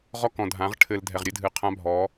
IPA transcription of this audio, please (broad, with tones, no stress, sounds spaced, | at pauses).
ʁ ɔ˦ k ɔ̃˨ dʱ ã˨˦ ʁ ʈʰ ɘ˨ l dʱ ɛ˨ ʁ ɾʲ ɘ˦ dʱ ɨ˨ qʰ ã˦ bʱ ɔ˨˦